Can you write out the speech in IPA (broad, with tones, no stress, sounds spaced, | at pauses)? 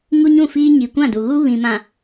ŋ u˦ ɲ ũ˦˨ f iː˦ ɲ i˨ kʷ ã˦˨ d u˨ ɣ u˦ β ĩ˨ m ã˨